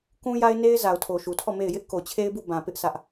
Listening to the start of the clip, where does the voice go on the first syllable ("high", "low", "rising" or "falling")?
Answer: high